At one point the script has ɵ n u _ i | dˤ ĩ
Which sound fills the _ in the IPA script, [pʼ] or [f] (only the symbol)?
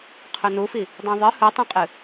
f